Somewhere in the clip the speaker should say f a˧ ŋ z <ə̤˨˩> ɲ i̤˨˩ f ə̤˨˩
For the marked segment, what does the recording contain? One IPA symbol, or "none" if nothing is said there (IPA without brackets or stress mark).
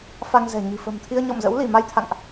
ɛ̤˨˩